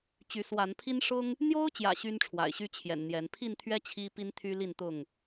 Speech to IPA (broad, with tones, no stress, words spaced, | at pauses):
t͡ɕy˨˦swa˨˦npʰi˦n ʂʊ˦ŋ | n̪jo˦ʊ̯t͡ɕjä̰˨˩ ɕy˦nʈ͡ʂʰwa̰˨˩ɪ̯ɕy˦ t͡ɕʰjɛ̰˨˩nn̪jɛ˨˦n pʰi˥˨nt̪ʰɥɛ˦ t͡ɕʰi˦pi˦n t̪ʰy˦ li˥˨nt̪ʊ˥˨ŋ